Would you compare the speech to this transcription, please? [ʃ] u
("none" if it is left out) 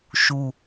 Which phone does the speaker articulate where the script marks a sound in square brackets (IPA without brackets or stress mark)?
ʃ